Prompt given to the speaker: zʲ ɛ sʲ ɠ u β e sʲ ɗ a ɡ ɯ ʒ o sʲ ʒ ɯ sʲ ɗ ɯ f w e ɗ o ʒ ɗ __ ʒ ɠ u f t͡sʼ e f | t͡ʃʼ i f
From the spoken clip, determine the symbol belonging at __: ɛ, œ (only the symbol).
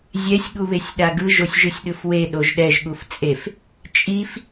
ɛ